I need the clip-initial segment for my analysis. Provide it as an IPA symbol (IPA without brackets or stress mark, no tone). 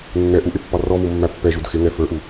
nː